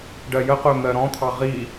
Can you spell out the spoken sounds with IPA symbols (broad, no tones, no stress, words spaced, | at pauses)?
ɖɜjəqʊː n̪ɜɾɔ̃t̪ʰɑ ʁi